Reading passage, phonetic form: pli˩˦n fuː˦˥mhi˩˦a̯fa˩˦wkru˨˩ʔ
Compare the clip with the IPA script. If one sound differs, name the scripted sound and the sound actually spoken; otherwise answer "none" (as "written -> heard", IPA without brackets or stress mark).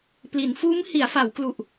r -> l